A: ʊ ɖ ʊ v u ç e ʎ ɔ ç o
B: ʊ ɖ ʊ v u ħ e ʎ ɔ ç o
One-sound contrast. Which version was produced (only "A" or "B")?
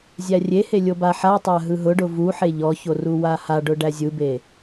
B